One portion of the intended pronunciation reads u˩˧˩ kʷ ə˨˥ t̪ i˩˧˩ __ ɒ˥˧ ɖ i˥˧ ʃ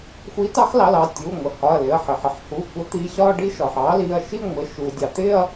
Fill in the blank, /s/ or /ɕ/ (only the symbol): ɕ